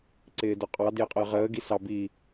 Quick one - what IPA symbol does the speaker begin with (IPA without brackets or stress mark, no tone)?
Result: ǀ